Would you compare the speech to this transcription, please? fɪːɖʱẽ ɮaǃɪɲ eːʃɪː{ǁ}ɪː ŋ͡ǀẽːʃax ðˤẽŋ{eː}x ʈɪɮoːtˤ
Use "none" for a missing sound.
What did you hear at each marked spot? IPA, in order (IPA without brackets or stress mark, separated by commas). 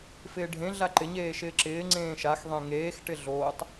ǁ, eː